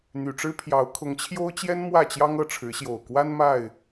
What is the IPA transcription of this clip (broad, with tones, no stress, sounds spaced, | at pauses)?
n̪ y˨˩ ʈ͡ʂ ɻ̩˦ pʰ j ɑ˨˦ ʊ̯ kʰ ʊ˨˦ ŋ t͡ɕʰ j o˦ ʊ̯ t͡ɕ j ɛ˦ n m w ä˥˨ t͡ɕ j ɑ˦ ŋ ɤ˥˨ ʈ͡ʂʰ ɻ̩˨˦ ɕ j o˨˩ ʊ̯ k w a˦ n m a˥˨ ɪ̯